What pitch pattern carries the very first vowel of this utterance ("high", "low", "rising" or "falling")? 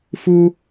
high